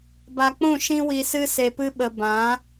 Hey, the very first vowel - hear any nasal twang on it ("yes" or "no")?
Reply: no